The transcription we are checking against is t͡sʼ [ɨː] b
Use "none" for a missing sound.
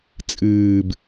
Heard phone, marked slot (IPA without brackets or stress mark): ɨː